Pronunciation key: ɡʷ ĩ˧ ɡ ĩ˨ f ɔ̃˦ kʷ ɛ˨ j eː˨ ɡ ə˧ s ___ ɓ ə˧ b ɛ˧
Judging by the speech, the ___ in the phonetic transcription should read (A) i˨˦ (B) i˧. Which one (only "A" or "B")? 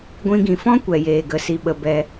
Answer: B